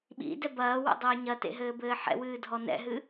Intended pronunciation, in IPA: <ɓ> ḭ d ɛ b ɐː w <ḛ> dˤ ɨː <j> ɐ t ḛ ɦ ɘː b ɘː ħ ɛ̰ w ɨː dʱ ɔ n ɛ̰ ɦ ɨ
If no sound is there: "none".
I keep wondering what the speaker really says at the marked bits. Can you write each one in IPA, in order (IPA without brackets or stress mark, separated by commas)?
ɓ, ḛ, ɲ